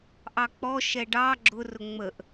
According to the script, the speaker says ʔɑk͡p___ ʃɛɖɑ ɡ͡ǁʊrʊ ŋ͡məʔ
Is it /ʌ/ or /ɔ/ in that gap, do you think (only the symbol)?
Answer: ɔ